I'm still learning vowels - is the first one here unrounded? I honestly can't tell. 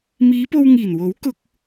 yes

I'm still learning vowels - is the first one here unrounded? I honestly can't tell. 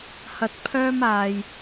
yes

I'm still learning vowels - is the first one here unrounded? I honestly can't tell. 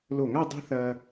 no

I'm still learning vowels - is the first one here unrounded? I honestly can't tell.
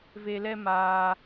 yes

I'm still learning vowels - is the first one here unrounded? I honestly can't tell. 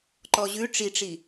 no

